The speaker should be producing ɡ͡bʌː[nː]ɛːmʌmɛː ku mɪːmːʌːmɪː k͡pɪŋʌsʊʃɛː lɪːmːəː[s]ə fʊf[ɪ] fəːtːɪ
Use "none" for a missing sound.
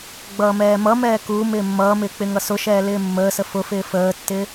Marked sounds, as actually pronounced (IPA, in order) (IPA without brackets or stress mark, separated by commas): m, s, ɪː